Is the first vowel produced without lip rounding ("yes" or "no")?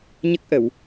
yes